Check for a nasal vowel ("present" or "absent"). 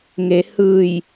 absent